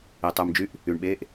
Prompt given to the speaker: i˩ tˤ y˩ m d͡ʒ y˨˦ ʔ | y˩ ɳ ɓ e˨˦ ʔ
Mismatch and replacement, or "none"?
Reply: none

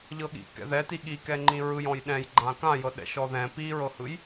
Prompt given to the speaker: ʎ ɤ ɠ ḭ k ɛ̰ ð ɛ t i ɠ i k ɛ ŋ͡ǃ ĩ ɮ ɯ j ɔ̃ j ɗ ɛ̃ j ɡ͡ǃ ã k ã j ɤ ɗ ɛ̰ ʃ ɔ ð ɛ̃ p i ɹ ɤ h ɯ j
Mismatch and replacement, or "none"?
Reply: ɮ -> ɹ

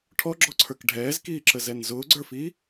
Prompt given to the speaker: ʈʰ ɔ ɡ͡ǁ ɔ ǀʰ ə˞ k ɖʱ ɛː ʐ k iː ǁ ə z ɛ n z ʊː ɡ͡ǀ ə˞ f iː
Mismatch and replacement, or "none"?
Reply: ʐ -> z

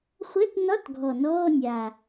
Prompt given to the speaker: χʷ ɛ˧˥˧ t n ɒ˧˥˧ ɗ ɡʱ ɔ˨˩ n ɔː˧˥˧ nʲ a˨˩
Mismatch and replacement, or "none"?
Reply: ɗ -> t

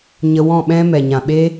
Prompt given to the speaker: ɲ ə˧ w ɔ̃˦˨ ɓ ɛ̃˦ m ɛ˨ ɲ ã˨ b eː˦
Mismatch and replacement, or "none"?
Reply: b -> ɓ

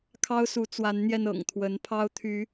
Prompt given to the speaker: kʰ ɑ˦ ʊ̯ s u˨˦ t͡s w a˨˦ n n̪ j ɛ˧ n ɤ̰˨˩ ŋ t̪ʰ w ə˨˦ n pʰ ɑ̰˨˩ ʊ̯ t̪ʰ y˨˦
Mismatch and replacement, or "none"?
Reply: ɑ̰˨˩ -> ɑ˦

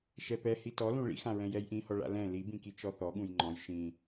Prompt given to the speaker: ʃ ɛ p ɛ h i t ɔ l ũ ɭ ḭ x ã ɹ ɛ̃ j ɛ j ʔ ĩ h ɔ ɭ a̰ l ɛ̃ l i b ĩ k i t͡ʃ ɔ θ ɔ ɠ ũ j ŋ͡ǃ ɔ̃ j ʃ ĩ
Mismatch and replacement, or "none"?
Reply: none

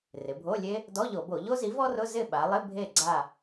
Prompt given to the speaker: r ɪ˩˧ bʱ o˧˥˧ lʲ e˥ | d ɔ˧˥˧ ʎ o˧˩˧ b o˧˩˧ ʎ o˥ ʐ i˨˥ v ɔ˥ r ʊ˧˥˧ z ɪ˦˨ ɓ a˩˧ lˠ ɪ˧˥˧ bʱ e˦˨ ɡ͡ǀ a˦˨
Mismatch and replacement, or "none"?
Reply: ʐ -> z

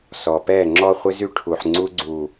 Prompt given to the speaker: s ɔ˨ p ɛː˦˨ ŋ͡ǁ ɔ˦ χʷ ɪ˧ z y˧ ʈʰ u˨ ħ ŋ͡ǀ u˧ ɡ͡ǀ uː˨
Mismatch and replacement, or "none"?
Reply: none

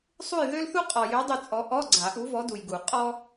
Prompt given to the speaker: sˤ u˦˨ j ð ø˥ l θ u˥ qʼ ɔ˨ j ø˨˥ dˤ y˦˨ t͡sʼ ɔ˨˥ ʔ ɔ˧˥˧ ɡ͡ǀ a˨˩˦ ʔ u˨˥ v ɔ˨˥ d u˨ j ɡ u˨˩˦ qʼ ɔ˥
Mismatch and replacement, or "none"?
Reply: none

